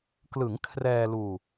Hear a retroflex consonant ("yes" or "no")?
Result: no